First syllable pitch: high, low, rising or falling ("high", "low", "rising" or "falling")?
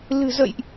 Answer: low